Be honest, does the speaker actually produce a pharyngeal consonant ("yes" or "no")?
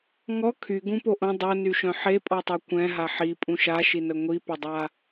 yes